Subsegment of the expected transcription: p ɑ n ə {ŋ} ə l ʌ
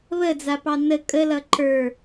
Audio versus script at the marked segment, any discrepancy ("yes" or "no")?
yes